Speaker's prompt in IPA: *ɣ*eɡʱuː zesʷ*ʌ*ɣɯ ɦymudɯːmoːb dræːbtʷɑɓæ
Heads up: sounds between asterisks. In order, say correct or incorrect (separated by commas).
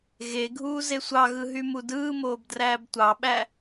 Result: correct, incorrect